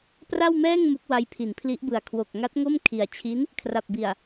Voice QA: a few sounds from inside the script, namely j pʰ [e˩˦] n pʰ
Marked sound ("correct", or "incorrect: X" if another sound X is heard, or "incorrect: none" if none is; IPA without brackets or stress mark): incorrect: i˩˦